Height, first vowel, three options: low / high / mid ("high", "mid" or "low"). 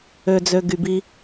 mid